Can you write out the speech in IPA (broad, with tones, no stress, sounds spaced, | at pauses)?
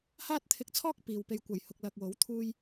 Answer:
h aː˥ t̚ t̪ʰ ɪ˧ k̚ t͡sʰ ɔː˥ k̚ p iː˨ w p e˧ j kʷ ɐ˨˩ j h ʊ˨ k̚ l ɐ˨ k̚ w o˨˥ w t̪ʰ uː˧ j